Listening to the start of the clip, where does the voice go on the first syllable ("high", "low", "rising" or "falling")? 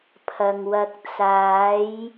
low